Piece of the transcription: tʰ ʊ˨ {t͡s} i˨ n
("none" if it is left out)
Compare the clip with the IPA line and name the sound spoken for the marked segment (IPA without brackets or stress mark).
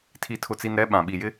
t͡s